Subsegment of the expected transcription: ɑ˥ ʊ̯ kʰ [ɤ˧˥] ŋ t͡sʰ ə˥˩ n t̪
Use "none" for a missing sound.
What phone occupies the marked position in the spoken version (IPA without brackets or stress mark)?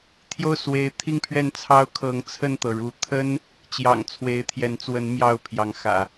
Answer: ɤ˧˥